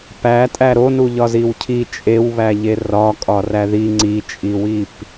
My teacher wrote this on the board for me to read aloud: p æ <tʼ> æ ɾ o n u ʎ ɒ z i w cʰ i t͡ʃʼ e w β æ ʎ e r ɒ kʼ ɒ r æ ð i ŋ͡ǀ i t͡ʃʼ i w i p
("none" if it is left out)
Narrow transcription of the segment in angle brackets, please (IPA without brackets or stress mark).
tʼ